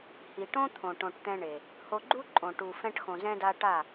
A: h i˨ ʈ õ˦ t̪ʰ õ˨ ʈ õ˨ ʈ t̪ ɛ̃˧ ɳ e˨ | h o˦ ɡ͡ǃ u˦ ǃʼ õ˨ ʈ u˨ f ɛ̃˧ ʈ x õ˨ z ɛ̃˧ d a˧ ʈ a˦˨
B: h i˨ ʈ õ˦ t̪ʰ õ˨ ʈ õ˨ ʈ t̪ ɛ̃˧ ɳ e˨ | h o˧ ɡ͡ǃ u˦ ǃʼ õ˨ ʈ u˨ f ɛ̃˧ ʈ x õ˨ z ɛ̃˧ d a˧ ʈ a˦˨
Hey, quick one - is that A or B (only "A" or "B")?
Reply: B